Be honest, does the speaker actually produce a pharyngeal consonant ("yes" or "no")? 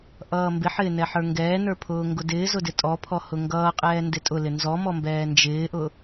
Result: yes